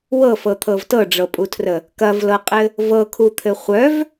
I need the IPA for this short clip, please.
w ɤ f ɤ t̪ʰ ɤ v t ɤ ɖ͡ʐ ɤ pʼ u tʰ r ə | k ɐ v l ɤ qʼ ɘ | v ɤ kʰ u t̪ʰ ɘ χʷ œ v

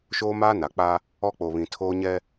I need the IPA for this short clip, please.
ʃ oː˦ m aː˦ n a˨ k͡p a˦ | ɔ˦ k͡p o˨ β ĩ˨ tʰ oː˦ ɲ ɛ˦

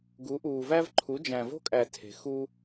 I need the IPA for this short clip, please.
ɡ u˧˥ ʔ uː˧ v æ˥ v ǃʰ u˧˥ d͡ʒ æ̃˧ v o̤˥ kʼ æ˧ tʰ e̤˧ x u˥

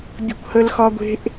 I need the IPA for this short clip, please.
bʲ ə̤ kʷ h ə l x ɒ ɡʷ e̤ ʔ

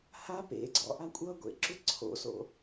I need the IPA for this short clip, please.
h a p ḛ ɡ͡ǀ ɔ̰ ʔ a kʷʼ ʌ ɡʷ ḛ ǁ ʏ ǀʰ o̰ s o̰

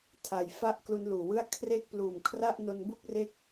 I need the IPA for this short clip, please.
tʰ a˨˩ j f a˥˩ ʔ k l u˦˥ n l uː˨˩ w ɯ˥˩ a̯ kʰ r e˦˥ k̚ p l uː˨˩ m kʰ r a˥˩ ʔ n o˧ n b u˥˩ k̚ r e˦˥ k̚

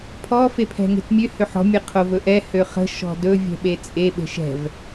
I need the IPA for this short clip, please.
pʰ ɔ f e pʰ ɛ̤ ŋ e̤ t mʲ ø h ø ħ ɔ̤ mʲ ə qʰ o v ɵ ʔ ɛ h ø χ ə̤ ʃ ɔ̤ d ɵ vʲ ɛ̤ ɓ e t͡sʼ e ɓ e̤ ʃ ɛ̤ v

